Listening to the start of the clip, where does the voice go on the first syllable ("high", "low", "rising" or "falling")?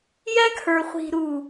high